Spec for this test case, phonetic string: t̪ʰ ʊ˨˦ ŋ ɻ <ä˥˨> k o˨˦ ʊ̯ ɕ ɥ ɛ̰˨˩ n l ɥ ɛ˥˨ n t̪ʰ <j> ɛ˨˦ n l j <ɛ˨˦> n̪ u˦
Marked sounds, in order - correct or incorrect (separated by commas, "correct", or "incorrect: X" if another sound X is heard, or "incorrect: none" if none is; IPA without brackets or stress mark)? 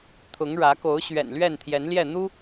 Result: incorrect: ä˨˦, correct, incorrect: ɛ˥˨